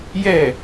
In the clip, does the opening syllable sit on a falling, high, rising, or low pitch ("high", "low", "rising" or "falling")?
falling